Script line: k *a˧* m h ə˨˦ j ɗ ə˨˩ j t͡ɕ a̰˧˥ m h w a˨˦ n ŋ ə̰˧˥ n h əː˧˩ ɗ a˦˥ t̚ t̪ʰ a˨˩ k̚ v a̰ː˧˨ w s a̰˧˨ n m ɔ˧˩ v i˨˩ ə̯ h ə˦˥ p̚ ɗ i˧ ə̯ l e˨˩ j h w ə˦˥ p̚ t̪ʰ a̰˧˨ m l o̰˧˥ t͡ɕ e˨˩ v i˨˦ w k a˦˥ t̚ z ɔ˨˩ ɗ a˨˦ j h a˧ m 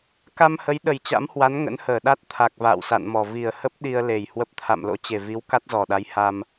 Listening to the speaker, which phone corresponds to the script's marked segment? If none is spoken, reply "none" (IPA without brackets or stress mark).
a˧